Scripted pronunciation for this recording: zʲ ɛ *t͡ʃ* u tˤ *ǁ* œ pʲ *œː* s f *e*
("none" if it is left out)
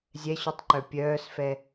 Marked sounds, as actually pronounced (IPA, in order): ɕ, ǃ, œː, ɛ

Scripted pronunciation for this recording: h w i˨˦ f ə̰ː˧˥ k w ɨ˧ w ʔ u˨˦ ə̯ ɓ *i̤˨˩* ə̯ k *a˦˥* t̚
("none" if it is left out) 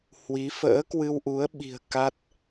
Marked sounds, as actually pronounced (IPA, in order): i̤˨˩, a˦˥

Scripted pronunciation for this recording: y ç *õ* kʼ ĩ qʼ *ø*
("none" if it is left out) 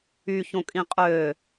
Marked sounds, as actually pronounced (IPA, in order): õ, ø

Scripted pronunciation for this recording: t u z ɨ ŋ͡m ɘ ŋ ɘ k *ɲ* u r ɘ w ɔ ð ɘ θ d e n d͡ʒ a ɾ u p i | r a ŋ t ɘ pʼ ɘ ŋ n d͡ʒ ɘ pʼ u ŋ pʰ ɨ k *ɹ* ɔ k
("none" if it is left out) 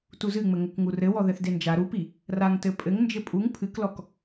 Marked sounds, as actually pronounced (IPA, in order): ŋ, l

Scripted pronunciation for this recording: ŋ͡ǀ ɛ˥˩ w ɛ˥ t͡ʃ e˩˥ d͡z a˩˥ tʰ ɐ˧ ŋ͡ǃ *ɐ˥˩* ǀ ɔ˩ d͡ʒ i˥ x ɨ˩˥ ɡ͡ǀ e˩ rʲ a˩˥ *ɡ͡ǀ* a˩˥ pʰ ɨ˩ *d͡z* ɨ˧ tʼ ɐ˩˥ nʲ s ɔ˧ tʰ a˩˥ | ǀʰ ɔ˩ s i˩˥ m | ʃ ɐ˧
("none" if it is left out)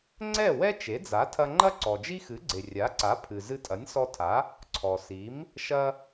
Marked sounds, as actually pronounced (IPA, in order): ɐ˥, ǀ, z

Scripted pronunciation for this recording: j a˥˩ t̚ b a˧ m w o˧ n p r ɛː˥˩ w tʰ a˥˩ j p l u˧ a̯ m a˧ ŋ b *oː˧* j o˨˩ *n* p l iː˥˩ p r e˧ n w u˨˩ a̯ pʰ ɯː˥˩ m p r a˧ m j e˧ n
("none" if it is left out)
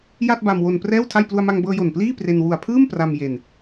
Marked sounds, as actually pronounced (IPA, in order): ɤː˧, n

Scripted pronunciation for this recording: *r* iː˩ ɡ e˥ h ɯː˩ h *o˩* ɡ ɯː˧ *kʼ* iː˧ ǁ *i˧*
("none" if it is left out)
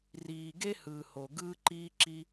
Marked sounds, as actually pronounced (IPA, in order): r, o˩, ǃ, i˧

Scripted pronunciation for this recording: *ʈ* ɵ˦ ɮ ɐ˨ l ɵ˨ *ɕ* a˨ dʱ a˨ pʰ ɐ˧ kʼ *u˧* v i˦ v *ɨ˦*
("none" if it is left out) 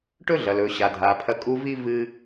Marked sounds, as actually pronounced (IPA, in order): ʈ, ɕ, u˧, ɨ˦

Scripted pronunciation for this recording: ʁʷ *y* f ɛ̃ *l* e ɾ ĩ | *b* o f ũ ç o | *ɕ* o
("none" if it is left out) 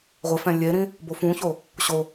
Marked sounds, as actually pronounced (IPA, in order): ɪ, lʲ, b, ɕ

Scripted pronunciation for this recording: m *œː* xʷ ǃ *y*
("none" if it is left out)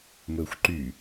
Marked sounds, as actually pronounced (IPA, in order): ɵː, y

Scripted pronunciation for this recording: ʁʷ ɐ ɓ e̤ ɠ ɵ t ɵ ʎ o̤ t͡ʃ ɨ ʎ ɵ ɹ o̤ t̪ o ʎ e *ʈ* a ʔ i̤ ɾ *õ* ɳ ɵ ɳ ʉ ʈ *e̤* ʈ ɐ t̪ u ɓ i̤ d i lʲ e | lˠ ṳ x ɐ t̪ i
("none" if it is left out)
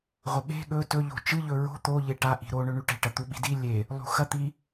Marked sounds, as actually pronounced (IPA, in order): ʈ, o, e̤

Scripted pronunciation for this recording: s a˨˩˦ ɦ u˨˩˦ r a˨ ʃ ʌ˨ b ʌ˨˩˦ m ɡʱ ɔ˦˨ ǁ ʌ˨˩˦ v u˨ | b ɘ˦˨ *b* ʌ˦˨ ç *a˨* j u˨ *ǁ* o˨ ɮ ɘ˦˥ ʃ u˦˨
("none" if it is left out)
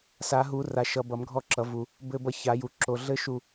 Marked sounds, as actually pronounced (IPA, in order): b, a˨˩˦, ǁ

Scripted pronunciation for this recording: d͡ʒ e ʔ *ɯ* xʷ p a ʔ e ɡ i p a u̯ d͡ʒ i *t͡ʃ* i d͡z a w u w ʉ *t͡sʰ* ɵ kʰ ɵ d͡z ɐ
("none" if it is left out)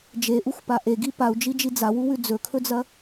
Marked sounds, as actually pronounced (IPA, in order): u, d͡ʒ, d͡z

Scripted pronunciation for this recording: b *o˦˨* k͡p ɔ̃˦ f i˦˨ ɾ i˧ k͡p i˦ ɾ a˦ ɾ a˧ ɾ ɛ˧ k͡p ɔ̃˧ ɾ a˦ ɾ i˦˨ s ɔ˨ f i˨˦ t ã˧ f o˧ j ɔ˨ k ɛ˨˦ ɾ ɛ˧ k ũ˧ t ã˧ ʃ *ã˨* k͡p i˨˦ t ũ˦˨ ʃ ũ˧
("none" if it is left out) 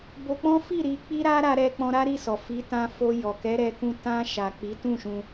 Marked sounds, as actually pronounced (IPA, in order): o˧, a˨

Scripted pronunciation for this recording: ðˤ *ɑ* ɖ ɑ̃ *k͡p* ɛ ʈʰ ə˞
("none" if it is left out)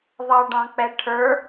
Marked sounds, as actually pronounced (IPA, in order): ɑ, k͡p

